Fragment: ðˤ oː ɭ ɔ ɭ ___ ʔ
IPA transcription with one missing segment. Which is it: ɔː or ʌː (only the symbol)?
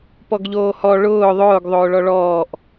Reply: ɔː